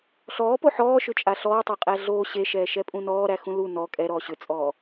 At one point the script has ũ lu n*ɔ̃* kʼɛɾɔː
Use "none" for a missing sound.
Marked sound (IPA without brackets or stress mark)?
ɔ